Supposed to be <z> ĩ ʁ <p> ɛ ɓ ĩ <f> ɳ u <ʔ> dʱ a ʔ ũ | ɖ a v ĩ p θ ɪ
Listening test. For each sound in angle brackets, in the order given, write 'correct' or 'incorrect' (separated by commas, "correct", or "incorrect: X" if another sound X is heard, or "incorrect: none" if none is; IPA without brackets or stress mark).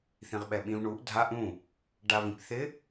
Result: incorrect: θ, incorrect: ɓ, incorrect: v, correct